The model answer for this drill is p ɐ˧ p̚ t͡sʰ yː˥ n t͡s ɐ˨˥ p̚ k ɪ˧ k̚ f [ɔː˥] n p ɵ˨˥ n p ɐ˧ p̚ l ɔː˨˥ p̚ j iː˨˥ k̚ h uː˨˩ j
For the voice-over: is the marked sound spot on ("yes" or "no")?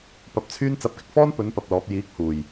yes